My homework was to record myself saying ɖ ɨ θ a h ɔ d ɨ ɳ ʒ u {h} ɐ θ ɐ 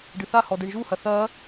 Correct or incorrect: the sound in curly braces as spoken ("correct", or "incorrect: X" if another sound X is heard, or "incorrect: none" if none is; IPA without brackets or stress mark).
correct